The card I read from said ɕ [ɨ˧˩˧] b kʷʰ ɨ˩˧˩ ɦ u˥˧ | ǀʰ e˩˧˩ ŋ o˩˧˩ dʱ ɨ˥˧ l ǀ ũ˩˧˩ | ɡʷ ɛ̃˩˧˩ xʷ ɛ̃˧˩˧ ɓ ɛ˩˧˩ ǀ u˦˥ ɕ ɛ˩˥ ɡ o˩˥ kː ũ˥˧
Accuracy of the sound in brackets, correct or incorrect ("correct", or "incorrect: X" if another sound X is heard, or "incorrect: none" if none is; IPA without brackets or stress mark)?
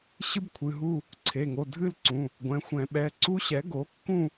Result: incorrect: ɨ˦˥